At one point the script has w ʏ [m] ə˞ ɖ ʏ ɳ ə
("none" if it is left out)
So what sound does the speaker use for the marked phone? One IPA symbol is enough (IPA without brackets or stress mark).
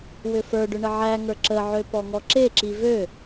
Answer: f